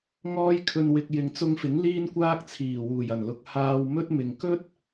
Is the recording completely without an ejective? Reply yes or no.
yes